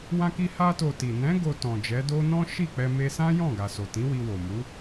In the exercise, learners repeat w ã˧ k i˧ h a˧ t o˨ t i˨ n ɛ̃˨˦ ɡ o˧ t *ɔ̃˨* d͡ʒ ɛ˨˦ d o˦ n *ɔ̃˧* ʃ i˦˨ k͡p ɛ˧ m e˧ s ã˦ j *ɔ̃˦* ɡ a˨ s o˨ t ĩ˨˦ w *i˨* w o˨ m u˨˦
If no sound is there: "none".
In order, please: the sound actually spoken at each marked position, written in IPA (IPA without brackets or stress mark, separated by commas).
ɔ̃˨, ɔ̃˦, ɔ̃˦˨, i˧